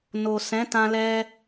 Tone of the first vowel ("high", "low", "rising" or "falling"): low